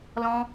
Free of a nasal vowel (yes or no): no